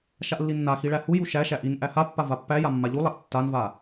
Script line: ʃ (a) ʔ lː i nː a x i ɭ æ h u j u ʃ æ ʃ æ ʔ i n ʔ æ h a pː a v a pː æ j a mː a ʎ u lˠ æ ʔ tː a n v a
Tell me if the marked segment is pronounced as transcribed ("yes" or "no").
yes